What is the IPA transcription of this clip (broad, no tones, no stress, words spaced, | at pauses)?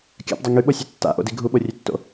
kʲa̰pdˤʌ ŋyɓosʲʉ tːa̰ʔo̰di ɡʱuɓorʲʉtːo̰